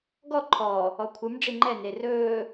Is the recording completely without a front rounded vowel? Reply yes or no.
yes